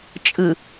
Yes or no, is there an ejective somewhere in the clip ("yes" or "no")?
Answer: yes